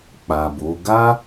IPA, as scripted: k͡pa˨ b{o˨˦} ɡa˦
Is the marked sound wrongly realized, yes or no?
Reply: no